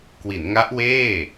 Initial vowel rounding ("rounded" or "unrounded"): unrounded